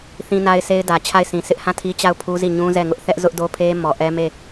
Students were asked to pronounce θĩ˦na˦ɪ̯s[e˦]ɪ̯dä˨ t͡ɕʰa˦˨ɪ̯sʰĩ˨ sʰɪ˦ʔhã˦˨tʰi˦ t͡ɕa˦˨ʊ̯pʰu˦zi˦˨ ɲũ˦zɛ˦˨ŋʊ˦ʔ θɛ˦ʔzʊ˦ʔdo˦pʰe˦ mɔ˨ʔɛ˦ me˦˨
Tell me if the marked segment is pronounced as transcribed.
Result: yes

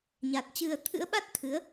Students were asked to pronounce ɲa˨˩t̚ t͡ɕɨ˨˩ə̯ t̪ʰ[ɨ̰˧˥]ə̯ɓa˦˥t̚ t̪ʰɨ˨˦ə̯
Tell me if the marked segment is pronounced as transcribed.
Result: yes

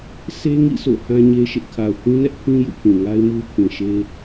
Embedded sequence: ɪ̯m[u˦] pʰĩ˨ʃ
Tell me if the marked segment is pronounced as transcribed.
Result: yes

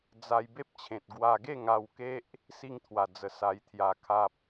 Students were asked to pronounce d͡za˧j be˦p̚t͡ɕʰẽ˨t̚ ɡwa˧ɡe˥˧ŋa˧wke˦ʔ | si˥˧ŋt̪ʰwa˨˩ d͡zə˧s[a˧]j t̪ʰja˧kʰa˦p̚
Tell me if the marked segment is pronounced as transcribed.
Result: yes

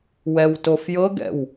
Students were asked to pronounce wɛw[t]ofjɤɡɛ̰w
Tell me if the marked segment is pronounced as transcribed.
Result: yes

